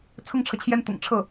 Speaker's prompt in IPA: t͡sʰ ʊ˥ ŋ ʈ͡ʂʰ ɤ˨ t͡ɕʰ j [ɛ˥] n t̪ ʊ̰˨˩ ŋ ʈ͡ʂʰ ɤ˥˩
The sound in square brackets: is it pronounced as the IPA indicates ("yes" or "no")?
yes